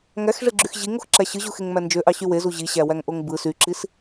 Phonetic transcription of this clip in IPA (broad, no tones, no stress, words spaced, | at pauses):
ŋæxʐeɡ͡ǁyx ʑiŋoxǁæ ɕɯʑuxeŋmæ nd͡ʒøʔɑɕy wezu ʑiɕæwæŋʔoŋ bɯ syǁis